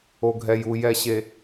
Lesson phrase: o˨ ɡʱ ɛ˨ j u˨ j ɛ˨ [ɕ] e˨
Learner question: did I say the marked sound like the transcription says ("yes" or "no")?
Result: yes